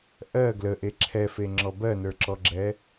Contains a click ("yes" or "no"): yes